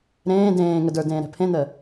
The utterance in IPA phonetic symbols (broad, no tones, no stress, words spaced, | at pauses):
ɾẽː dẽː ŋədə˞dẽː ɾɛ̤pʰẽn̪əː